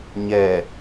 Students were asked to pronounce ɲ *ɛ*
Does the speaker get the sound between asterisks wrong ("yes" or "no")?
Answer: no